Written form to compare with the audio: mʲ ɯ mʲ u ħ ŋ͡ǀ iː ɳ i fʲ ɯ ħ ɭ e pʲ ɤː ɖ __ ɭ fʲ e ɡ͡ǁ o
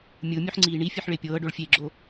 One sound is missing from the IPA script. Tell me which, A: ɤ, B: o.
B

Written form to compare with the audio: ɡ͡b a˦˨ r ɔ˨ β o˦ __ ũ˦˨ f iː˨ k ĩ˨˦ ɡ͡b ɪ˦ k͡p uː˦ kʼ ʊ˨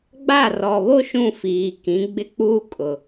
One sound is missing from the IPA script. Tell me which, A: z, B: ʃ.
B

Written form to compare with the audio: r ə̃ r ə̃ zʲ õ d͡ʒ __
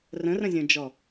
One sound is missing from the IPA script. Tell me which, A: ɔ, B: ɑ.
A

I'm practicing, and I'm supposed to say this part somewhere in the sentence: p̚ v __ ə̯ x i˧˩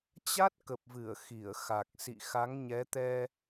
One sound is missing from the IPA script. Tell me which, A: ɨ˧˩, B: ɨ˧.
A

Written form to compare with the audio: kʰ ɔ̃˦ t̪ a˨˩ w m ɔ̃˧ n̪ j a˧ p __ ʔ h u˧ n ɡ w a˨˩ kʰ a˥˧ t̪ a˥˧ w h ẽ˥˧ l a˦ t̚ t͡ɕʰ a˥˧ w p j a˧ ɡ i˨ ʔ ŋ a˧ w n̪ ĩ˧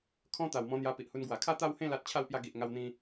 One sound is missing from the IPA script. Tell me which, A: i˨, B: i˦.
A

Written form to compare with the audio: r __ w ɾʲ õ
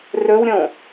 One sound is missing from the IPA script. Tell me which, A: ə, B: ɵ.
B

